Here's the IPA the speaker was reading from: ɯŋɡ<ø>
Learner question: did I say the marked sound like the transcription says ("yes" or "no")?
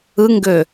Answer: yes